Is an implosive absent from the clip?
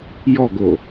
yes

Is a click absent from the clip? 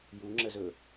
no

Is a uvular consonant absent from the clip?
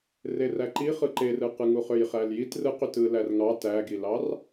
no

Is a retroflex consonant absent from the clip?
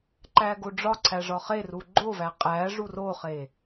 no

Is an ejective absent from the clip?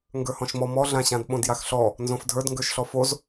yes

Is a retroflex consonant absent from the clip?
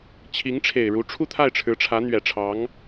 no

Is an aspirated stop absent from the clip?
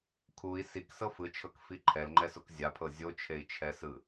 no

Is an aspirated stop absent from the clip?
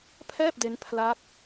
no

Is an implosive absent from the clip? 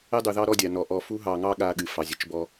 no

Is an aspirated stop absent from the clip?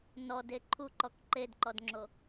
no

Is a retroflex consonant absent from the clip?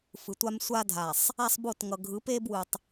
yes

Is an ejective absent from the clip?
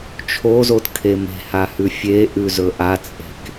no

